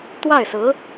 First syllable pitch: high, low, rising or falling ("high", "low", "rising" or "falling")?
falling